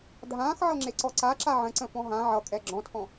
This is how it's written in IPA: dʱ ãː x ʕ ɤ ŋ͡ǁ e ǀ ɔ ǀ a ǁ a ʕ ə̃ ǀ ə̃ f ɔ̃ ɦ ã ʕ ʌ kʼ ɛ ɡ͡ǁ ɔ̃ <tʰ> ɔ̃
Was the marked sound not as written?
no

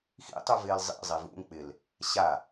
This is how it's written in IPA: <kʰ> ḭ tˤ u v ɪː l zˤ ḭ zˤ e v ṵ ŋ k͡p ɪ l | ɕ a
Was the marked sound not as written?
yes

